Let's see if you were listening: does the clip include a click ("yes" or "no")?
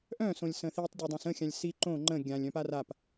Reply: yes